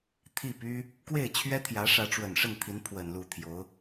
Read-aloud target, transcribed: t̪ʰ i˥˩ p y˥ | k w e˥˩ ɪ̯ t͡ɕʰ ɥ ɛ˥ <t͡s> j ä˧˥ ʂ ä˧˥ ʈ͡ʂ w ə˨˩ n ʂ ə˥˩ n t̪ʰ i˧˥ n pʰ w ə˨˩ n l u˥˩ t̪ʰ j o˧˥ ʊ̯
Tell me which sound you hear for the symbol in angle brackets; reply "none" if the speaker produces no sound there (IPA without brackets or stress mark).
t̪ʰ